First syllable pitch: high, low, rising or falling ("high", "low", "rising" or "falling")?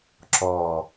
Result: low